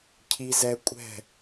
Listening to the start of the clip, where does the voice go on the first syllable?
high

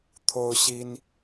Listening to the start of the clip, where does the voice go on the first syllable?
high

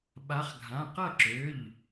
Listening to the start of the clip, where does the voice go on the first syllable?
rising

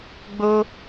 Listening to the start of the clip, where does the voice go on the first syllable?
high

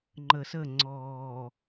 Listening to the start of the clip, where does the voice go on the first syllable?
low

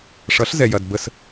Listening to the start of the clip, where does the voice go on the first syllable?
rising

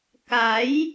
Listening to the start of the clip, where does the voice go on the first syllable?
rising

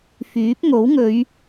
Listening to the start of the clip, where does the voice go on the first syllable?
rising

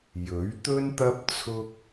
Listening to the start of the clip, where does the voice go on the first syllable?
rising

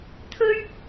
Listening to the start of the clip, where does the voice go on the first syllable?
high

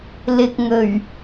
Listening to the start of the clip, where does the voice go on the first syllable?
low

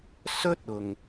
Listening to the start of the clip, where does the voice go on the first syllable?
high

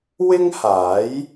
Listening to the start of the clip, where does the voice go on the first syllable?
high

